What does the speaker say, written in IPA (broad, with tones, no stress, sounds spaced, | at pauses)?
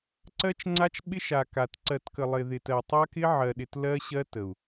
ǀ ɜ˦ t͡ʃ ŋ͡ǀ a˦ t͡ʃ ɓ ɪ˦ ʃ a˨ k a˨ t ǀ ɜ˨ t k ə˨ lˠ ɪ˨ ð ɪ˨ t ɜ˨ tˤ a˦ k ɪ˦ ʕ ɜ˨ ɗ ɪ˨ t l ɜ˦ ɕ ɜ˦ t ə˨ u̯